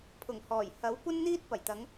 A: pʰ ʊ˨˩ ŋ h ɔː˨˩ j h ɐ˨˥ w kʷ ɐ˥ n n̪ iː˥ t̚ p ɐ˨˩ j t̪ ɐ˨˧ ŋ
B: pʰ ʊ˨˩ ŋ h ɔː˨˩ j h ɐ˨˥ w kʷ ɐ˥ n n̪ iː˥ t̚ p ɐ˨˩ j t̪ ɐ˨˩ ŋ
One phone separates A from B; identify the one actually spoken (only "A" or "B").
A